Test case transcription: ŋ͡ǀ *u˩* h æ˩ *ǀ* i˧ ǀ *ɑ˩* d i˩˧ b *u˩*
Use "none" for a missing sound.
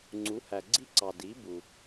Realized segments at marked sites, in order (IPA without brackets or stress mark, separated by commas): u˩˧, ɡ͡ǀ, ɑ˩, u˩